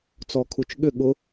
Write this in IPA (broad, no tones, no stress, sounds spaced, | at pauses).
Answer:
t͡s ɔ kʰ u t͡ʃ ɠ ʏ ɠ ʊ